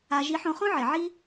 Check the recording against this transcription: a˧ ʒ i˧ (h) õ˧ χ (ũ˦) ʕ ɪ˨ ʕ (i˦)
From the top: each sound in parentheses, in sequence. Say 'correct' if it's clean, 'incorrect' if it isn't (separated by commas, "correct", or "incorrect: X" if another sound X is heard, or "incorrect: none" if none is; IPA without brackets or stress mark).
incorrect: ħ, incorrect: õ˦, correct